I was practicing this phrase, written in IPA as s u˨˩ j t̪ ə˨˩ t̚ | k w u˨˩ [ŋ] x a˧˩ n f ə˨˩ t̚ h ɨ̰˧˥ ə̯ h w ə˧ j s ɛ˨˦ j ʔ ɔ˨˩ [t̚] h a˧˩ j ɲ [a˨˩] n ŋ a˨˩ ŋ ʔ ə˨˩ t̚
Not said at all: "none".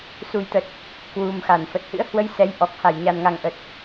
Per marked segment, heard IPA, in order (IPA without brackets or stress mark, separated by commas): m, k̚, a˨˩